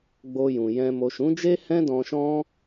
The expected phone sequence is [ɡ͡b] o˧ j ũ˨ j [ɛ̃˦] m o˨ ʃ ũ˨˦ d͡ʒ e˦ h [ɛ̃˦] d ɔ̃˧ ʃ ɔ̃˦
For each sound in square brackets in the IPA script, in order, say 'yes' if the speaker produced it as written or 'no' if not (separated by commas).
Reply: yes, no, yes